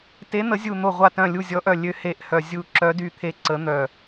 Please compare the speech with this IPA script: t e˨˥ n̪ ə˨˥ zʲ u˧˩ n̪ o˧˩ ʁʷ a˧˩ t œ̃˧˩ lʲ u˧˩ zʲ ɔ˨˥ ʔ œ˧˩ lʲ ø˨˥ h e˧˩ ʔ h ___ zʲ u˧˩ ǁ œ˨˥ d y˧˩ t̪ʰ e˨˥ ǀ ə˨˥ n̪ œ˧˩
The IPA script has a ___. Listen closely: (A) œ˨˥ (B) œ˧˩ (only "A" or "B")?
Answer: B